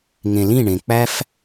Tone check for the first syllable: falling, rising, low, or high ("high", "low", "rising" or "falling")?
low